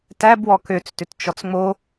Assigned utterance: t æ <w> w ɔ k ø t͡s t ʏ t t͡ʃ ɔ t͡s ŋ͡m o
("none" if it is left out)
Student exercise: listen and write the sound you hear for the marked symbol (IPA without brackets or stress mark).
b